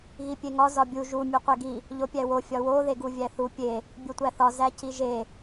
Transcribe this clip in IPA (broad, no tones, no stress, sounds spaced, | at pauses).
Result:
ɣ i pʲ e ŋ ɒ z ɒ bʲ u ʒ u mʲ u qʷ e ɡ i | ʎ o pʲ æ w o fʲ ɒ w o ð e ɡ u vʲ æ θ u pʲ e | bʲ o tʷ æ θ ɒ z æ c i ʒ e